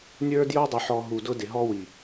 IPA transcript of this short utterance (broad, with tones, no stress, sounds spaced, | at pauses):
nʲ ə˞˦ d j o˦ dˤ ʊ˨ ħ ɔ˨ ɦ u˨ d ʊ˦ d ɪ˨ ɦ ɔ˦ w i˨